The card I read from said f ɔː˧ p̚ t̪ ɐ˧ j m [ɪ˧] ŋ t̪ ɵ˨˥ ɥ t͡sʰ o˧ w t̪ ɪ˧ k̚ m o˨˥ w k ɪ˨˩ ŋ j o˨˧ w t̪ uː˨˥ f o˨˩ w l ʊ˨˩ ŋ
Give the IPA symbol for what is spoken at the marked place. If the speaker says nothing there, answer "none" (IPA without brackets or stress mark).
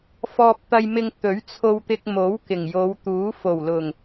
ɪ˧